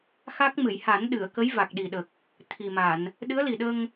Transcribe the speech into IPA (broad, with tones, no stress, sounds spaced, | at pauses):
x a˦˥ k̚ m ɨ˨˩˨ j h a˨˩˦ n ɗ ɨ˨˩˨ ə̯ k ə˧˥ j v a˨˩ k̚ ɗ i˨˩ ɗ ə˨˩ k̚ | t̪ʰ i˨˩ m a˨˩˨ n | ɗ ɨ˧˥ ə̯ l i˨˩ ɗ ə˧ ŋ